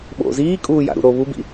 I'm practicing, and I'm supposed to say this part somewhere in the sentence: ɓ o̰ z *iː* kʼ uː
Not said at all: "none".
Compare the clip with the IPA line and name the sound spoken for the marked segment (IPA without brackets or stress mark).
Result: iː